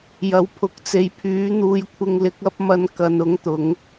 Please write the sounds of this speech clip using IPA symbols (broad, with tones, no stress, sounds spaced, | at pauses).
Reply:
j ɐ˨˥ w pʰ ʊ˨˥ k̚ t͡s e˨˧ j pʰ yː˨˥ n̪ uː˧ j kʷʰ ɪ˧ ŋ l ɪ˨˥ k̚ ɐ˥ p̚ m ɐ˧ n k ɐ˨˧ n ʊ˨˥ ŋ t̪ ʊ˨˧ ŋ